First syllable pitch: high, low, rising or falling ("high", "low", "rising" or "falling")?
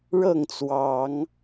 falling